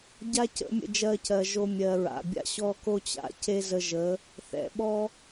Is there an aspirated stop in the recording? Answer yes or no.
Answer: no